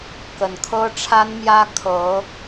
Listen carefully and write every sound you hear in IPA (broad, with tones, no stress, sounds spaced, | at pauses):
k ə˨˩ n kʰ ɤ˥ ʈ͡ʂʰ a˥ n m j ä˥ kʰ ɤ˧˥